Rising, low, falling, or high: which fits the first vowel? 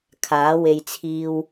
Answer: rising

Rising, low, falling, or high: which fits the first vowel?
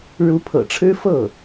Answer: rising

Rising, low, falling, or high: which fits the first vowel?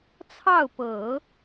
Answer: falling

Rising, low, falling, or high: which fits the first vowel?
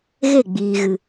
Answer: falling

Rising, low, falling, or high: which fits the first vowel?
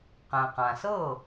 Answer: low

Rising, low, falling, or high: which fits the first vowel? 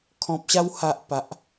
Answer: low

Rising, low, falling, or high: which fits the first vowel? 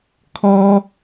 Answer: high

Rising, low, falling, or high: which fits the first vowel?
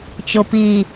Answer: low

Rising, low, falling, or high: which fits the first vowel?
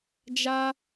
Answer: high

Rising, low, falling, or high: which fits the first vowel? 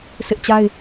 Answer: high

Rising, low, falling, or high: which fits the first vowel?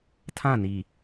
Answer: falling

